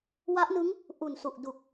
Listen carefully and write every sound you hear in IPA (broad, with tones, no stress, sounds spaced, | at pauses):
w a˦˥ ʔ n ɯ˦˥ ŋ | ʔ u˨˩ n s u˨˩ ʔ d u˨˩ k̚